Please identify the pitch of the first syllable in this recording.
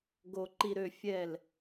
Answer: low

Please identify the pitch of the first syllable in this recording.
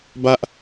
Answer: high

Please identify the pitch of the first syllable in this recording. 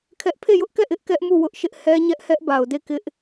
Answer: high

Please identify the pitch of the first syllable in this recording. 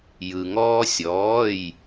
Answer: low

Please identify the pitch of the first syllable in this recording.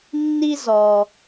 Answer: high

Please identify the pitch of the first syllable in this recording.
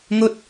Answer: high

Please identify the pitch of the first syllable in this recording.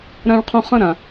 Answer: high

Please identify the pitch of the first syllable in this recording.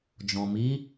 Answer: low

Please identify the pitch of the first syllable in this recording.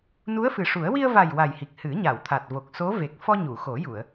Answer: rising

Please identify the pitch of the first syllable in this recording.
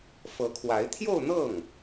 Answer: rising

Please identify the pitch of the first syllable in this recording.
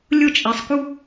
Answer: falling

